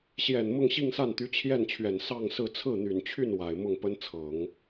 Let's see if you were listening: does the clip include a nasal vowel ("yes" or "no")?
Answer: no